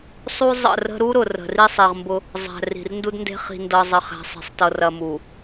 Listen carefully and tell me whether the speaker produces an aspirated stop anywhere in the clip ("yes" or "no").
no